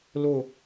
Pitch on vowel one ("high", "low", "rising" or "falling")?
falling